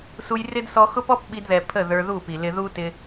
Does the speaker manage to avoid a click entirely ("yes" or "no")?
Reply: yes